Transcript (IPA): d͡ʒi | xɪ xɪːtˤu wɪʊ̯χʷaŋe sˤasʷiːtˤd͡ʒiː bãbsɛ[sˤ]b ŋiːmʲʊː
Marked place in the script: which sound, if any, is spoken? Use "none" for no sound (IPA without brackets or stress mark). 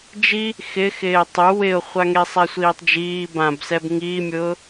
none